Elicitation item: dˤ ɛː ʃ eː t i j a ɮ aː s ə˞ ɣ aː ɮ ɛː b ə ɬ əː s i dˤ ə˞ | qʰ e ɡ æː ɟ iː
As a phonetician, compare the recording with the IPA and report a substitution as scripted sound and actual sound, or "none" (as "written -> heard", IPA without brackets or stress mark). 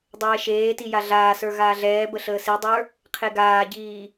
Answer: æː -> aː